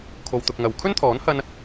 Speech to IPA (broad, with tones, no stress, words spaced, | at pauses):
kʰo˨wt̪ʊ˨k̚ ŋɐ˨w kʰɵ˥nt̪ʰɔː˨˥nhɐ˧n